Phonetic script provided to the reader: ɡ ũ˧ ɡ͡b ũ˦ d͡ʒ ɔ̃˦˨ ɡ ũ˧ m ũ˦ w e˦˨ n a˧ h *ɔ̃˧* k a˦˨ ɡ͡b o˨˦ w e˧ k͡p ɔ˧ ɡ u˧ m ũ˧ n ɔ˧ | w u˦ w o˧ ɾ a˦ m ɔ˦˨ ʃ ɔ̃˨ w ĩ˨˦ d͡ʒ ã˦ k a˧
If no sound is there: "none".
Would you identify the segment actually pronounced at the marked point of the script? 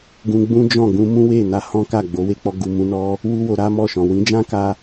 ɔ̃˦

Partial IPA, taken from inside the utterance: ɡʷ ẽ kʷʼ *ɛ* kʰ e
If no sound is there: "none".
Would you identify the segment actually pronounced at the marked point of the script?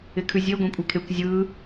ɛ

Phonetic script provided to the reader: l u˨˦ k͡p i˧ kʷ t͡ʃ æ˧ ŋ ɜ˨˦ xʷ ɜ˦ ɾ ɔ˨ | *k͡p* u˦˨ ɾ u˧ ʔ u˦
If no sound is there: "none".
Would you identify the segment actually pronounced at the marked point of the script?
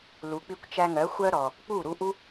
k͡p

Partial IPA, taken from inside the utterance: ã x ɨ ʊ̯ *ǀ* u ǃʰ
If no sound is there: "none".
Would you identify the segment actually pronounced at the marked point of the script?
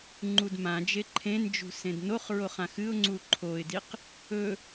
ŋ͡ǀ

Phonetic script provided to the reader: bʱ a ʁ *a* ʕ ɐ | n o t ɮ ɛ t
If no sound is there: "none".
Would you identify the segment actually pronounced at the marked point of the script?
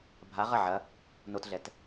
ɐ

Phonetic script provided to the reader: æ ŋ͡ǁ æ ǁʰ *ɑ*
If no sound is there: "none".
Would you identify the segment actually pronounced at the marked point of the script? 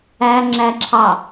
ɑ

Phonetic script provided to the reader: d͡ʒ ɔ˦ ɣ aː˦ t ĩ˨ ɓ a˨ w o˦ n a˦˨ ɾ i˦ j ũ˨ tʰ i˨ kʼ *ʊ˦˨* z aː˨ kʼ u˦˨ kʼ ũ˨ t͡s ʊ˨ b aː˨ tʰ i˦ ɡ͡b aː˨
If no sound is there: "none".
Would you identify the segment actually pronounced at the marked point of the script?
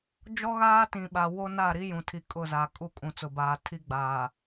ʊ˦˨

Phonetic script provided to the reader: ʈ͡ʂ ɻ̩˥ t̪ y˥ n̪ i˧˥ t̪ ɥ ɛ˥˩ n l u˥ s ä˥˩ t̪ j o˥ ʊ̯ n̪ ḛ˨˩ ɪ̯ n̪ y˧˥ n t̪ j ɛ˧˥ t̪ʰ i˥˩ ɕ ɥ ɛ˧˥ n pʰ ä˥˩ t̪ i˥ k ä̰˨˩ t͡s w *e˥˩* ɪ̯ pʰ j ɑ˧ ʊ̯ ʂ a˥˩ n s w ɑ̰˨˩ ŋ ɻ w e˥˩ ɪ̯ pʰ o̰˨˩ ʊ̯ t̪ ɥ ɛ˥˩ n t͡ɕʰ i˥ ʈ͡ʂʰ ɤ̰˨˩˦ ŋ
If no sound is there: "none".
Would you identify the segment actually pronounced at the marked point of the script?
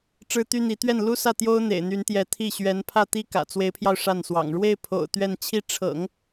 e˧˥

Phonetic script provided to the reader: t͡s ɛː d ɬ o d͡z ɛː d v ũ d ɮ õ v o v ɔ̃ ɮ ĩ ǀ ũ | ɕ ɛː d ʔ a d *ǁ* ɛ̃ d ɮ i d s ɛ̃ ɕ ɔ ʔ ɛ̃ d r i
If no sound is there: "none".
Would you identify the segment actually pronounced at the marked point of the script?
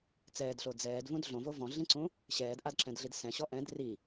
ǁ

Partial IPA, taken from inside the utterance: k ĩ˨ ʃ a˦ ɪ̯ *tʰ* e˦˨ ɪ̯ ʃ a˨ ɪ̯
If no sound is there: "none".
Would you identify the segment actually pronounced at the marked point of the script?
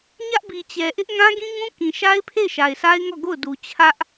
pʰ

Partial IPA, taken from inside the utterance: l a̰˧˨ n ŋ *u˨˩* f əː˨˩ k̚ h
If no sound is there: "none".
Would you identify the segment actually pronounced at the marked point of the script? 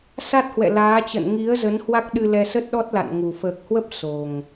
u˨˩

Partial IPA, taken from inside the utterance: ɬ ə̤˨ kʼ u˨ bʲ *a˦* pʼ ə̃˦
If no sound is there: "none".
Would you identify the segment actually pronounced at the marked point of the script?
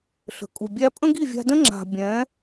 æ˦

